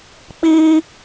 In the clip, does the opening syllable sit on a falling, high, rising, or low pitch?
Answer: high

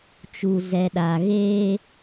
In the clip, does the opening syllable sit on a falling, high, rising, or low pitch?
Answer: low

